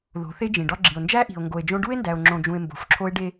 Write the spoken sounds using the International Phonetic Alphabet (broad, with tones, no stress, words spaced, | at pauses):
ðo̤˨˦θe˦d͡ʒĩ˨ ɖɒ˦ɡ͡ǁi˨o̯ nd͡ʒæ˦ʔi̤˨o̯ ŋɡo˨e̯d͡ʒõ˦ ɖu˦e̯ndæ˨o̯ŋ͡ǁõ˨d͡ʒũ˨e̯ mbo̤˨fǁʰo˦e̯ɖe˦